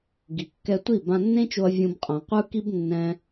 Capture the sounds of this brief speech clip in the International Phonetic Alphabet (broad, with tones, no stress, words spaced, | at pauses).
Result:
ɡi˨kːɛ˧tʷi˦˨ bã˧nːẽ˦t͡ʃo˧ɐ̯ vʲũ˧b qʼã˨qʷɯ˦ ki˦bnːɛ̃˧